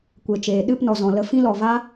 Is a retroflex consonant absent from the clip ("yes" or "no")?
yes